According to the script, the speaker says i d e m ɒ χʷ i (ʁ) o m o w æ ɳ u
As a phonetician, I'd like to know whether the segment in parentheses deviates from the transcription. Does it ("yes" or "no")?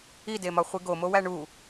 yes